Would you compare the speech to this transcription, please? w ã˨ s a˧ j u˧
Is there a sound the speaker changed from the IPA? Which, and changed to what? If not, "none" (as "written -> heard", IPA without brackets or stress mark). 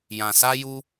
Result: w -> j